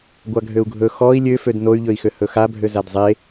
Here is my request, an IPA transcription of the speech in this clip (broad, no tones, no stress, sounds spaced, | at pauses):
ɡʷ a ɡʱ ø u̯ ɡʱ ɵ x ɔ i̯ lʲ ø f ø d n o y̯ ʎ ɵ i̯ x ø h ɵ x a bʱ ø z a d zˤ e